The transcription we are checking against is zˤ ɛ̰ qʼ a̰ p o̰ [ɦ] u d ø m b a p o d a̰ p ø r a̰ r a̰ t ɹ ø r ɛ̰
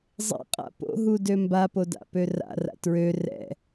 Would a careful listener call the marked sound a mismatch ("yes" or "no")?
no